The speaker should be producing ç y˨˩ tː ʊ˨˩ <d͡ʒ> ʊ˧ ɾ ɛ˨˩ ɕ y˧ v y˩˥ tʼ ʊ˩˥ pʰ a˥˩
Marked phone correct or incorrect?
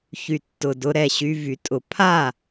incorrect